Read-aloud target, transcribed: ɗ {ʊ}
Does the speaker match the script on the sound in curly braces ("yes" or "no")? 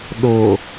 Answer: yes